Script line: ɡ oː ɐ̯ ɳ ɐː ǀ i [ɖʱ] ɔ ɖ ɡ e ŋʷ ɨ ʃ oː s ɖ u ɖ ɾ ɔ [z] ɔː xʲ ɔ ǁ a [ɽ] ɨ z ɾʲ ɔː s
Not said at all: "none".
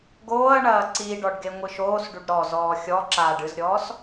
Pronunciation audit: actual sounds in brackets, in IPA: ɖ, z, ɖ

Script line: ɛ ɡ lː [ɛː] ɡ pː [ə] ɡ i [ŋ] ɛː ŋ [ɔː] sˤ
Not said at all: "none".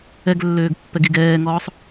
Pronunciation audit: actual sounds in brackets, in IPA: øː, ɛ, ɡ, ɔː

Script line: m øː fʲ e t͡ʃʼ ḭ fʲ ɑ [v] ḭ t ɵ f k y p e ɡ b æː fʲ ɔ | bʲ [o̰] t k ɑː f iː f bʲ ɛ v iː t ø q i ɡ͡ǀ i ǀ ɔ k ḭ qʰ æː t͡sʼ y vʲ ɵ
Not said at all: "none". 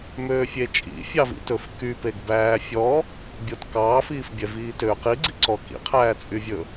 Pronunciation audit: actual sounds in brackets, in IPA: v, o

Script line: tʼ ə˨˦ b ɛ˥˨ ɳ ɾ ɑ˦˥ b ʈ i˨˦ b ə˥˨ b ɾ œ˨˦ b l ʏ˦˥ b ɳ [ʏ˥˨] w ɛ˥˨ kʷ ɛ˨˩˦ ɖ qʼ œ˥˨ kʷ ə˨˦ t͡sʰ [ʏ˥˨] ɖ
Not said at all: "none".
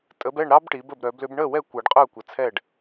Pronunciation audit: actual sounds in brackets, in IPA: ə˥˨, ɛ˥˨

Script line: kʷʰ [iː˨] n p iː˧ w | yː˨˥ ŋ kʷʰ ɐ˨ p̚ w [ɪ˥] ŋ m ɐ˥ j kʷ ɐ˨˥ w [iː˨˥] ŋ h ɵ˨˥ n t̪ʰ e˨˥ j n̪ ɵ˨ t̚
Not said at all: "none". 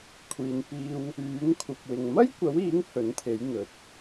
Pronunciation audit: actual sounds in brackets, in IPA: iː˨, ɪ˨, iː˨˥

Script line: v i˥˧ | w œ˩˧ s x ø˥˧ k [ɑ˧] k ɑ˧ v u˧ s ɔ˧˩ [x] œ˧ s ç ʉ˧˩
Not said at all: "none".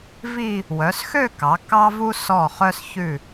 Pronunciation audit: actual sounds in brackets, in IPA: ɑ˩˧, χ

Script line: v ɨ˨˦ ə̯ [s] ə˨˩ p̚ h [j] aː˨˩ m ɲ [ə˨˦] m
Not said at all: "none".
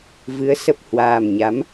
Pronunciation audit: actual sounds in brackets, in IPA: s, w, a˨˦

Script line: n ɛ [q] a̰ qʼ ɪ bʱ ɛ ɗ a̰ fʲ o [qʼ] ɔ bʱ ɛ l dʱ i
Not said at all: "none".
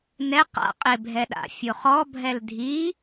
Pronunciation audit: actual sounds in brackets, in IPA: q, χ

